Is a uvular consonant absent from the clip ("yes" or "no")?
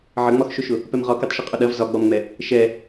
no